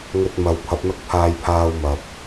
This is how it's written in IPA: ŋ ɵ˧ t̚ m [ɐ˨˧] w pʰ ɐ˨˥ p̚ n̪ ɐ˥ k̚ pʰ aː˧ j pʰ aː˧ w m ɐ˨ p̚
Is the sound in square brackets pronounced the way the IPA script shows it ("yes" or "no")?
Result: yes